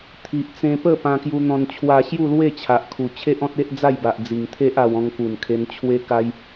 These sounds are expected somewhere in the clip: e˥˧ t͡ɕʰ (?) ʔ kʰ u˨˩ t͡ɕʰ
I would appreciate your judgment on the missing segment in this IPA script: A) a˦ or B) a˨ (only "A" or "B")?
B